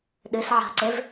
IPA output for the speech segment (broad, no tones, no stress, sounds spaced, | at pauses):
ɗ ɨ s ʕ a̤ ǀ e v